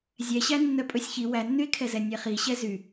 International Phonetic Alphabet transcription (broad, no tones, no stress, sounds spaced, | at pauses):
zʲ ɛ ɕ æ nː œ pʼ ɵ sʲ ç i w æ nː y e̯ kʰ ɛ z ɛ nʲ ɛ χ i ɕ ɛ z y